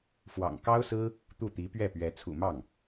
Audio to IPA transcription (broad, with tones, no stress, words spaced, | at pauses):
fwɑ̰˨˩ŋkɑ˥ʊ̯sɹ̩˥ | t̪u˥˩t̪i˧˥pɥɛ˥˩pɥɛ˧˥ t͡sʰṵ˨˩mɑ˥˩ŋ